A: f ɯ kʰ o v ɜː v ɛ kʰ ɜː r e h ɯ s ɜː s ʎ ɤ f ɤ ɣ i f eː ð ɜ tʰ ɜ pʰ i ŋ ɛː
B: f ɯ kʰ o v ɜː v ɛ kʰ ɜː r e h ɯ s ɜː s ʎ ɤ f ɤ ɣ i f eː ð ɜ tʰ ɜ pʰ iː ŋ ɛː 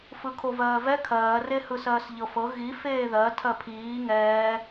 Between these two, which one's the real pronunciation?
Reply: B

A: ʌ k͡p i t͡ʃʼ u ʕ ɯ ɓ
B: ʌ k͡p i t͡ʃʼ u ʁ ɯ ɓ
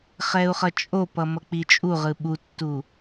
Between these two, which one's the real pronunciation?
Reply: B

